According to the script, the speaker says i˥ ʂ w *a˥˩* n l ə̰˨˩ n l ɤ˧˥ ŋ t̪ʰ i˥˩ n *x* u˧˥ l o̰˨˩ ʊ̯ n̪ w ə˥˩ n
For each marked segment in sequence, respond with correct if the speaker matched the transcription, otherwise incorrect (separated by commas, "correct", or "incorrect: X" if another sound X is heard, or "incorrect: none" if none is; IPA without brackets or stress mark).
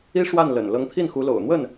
correct, correct